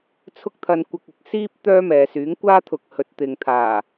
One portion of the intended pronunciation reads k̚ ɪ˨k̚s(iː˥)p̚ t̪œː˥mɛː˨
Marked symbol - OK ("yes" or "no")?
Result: yes